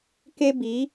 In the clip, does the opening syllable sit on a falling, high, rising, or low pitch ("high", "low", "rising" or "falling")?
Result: high